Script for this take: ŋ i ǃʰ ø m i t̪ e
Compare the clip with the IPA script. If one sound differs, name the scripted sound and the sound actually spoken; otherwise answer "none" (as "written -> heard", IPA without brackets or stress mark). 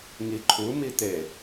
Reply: ø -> u